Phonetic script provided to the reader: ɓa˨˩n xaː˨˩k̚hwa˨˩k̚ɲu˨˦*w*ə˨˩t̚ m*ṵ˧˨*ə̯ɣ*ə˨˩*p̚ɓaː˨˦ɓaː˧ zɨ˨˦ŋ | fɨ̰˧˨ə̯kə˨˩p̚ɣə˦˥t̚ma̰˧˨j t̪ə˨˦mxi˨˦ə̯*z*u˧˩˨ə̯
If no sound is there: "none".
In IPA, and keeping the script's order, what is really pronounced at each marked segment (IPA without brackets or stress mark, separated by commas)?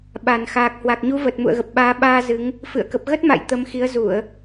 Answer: v, ṵ˧˨, ə˨˩, z